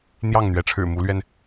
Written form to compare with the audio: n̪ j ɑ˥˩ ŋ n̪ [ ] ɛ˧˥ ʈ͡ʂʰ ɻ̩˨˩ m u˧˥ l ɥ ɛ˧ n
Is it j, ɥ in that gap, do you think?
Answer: ɥ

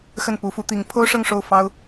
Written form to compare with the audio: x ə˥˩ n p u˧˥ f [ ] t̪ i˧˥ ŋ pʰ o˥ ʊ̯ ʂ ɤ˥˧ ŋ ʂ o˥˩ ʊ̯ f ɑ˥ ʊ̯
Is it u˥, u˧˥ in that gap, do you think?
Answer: u˧˥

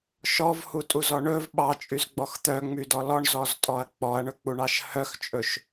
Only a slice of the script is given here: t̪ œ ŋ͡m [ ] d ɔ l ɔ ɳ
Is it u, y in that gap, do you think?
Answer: y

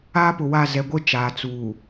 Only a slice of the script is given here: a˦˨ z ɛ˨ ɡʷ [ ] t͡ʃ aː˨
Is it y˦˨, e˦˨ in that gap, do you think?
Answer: e˦˨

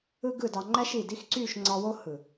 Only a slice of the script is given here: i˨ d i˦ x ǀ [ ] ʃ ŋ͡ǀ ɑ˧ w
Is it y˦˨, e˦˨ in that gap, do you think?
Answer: y˦˨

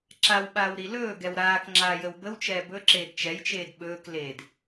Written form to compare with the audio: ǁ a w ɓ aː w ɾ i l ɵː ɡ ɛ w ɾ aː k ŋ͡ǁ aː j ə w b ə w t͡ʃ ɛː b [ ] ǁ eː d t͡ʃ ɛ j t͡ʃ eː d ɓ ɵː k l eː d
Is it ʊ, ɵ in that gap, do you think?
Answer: ɵ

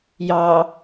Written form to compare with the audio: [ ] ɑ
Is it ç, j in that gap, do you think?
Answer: j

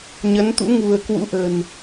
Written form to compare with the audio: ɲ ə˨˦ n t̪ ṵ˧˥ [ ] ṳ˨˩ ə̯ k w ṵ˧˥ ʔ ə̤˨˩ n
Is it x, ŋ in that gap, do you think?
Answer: ŋ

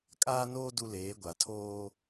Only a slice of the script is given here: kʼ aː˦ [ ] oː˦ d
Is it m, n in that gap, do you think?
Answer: n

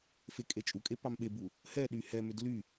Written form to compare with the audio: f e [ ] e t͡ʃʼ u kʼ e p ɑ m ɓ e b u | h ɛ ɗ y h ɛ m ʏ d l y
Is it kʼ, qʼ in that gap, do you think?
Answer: kʼ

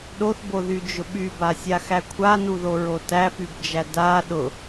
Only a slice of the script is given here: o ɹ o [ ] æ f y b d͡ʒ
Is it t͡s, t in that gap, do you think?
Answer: t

